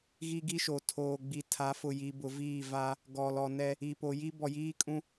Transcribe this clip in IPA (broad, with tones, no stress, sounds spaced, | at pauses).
ɣ i˦ ɡ i˦ ʃ o˨ tʰ oː˨ ɡ͡b i˨ tʰ a˨˦ f ʊ˨ j i˨ b ʊ˨ v iː˦˨ v a˦ | ɡ ɔ˨ l ɔ˨ n ɛ˦ | i˨ p o˨ j i˦ b ɔ˨ j iː˦ kʼ ũ˦